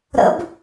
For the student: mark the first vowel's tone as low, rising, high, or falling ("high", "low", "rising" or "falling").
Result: rising